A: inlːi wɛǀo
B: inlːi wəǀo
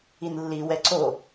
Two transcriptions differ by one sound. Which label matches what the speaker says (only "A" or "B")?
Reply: A